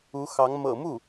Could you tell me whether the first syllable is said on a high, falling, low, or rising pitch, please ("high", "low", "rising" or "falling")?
rising